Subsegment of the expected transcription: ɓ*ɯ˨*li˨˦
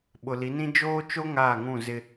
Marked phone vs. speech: incorrect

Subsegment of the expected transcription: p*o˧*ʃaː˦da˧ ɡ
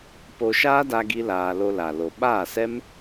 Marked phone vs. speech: correct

